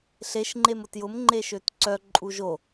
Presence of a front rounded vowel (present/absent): present